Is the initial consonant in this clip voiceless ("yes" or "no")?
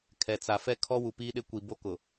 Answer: yes